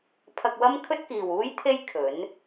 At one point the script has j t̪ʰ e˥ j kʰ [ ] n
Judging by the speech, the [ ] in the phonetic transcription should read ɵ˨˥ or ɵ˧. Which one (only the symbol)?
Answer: ɵ˨˥